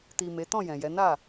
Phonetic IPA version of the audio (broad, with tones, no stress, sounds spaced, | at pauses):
t i˨ m e˨˦ t ɔ̃˦˨ j ɛ̃˨ j ɛ˨˦ n a˦˨